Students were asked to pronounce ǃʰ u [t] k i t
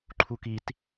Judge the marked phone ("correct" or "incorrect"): incorrect